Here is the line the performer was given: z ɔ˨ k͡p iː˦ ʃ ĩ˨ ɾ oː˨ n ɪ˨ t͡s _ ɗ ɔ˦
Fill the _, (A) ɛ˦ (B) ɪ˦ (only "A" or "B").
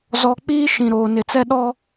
A